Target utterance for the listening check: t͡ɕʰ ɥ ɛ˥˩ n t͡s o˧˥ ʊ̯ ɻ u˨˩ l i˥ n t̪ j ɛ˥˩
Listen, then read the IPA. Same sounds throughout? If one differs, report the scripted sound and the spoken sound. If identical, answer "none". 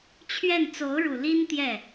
none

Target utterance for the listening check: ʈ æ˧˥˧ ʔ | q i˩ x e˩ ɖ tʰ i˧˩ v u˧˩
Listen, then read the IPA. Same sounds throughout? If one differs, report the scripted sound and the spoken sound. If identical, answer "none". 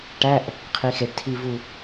q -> qʰ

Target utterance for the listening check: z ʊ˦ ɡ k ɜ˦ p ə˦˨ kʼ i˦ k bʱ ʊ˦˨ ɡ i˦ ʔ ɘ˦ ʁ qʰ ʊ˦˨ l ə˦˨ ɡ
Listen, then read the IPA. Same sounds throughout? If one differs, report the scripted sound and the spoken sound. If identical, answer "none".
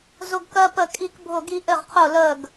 ɘ˦ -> ɘ˦˨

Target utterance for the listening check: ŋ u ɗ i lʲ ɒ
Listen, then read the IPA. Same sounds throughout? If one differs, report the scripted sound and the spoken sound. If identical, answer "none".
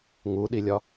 none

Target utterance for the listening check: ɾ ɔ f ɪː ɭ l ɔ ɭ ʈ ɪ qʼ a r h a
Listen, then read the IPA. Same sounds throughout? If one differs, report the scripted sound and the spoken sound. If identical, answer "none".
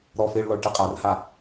none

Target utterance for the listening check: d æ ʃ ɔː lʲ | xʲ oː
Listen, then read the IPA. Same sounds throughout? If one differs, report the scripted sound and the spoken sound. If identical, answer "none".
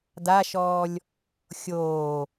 æ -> a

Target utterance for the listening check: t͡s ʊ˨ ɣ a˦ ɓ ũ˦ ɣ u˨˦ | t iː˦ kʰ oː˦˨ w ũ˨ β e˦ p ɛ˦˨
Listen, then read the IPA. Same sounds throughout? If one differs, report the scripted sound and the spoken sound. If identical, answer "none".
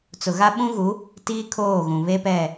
w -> ɣ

